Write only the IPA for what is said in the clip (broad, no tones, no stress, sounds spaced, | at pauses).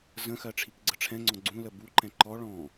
z ə̃ x ɜ ʈ͡ʂʰ i k ɡ͡ǀ ə ʈ͡ʂʰ ɛ̃ ŋ͡ǀ ɔ̃ ɡ͡ǀ ũ l ə b u ǃ ɛ̃ ǃ ɔ ɭ ɔ̃